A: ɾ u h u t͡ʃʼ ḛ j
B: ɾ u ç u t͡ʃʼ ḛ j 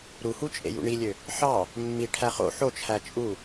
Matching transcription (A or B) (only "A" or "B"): A